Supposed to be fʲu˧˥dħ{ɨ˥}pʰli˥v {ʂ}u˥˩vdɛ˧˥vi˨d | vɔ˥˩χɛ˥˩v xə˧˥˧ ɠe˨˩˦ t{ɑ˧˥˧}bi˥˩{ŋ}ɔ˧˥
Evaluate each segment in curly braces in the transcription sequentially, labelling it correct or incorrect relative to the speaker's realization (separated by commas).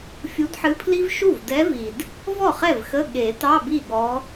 incorrect, incorrect, correct, incorrect